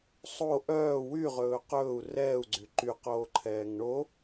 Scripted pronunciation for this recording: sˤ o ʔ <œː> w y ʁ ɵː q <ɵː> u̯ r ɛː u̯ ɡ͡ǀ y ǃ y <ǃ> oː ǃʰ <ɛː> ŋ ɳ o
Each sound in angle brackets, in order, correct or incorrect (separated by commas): correct, correct, incorrect, correct